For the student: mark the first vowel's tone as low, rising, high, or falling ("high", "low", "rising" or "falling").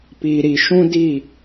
low